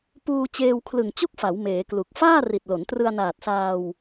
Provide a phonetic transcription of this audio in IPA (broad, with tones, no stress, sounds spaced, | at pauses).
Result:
p uː˧ t͡ɕ eː˧ w kʰ l ɯ˨˩ ŋ t͡ɕ u˥˩ k̚ f a˩˦ w m eː˩˦ k l u˨˩ k̚ f aː˥˩ r i˨˩ t̚ l o˩˦ n t r ɯ˧ a̯ n aː˨˩ t̚ s aː˧ w